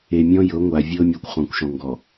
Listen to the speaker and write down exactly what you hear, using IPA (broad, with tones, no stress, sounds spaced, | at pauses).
e˨ mʲ ɔ̃˦ j ɤ˨˦ ŋʷ a˨ vʲ ɤ˦ mʲ a˦ kʷ χ ɔ̃˨ kʷ ʃ ɔ̃˨ ŋ ɡ ɔ˨